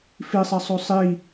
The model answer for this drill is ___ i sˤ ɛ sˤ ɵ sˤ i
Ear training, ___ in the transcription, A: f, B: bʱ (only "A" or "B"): A